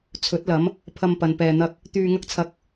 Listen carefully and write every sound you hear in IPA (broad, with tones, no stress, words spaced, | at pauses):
t͡sʰɵ˨˥t̚lɐ˨˥m | pʰɐ˧mpɐ˨n pɛː˧n̪ɐ˥k̚ | t̪yː˧ŋɐ˥k̚t͡sʰɐ˧k̚